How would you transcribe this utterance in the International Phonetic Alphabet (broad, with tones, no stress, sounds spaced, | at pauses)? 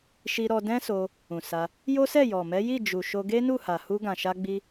ʃ i˧ ɾ ɔ˧ d ɛ̃˦ s o˧ | ũ˨ s a˧ | j o˦ s ɛ˦˨ j ɔ˨ m ɛ˨˦ j i˦˨ d͡ʒ u˨ ʃ o˧ ɡ e˦ n u˦˨ h a˨ h u˧ ɡ ã˨ ʃ a˧ ɡ͡b i˧